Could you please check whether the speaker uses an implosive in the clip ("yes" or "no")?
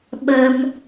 yes